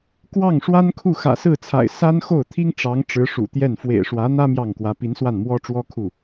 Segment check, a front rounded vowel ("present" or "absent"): absent